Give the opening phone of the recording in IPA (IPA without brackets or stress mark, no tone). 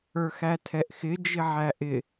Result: ə˞